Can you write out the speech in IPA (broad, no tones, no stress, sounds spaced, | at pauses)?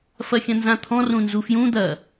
f ɐ xʲ ɐ̃ n z ã t̪ʰ ɔ̃ r ũ n z u f j ũ d̪ ɐ